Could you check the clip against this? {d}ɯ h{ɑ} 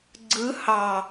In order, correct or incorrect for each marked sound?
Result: incorrect, correct

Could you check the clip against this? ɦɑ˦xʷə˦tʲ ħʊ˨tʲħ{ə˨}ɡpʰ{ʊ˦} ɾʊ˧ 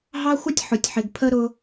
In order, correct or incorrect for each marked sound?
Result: incorrect, incorrect

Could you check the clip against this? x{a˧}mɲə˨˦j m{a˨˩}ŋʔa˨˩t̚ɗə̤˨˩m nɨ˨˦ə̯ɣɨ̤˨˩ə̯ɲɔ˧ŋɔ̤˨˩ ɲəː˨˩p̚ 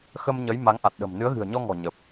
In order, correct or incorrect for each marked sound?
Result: incorrect, incorrect

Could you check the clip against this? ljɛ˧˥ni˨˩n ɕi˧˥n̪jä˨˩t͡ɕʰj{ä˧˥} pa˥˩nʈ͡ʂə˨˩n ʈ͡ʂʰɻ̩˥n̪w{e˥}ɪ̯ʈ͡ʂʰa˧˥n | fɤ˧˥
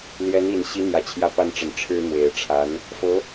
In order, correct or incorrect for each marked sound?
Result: correct, incorrect

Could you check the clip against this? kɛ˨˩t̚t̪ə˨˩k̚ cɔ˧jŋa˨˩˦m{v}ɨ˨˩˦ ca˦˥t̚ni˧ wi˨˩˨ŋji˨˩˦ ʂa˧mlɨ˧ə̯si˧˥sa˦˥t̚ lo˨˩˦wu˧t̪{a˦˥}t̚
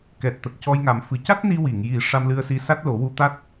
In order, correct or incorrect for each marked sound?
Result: incorrect, correct

